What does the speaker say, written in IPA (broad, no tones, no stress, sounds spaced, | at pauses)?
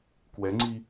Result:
k w ɛ ŋ͡ǀ i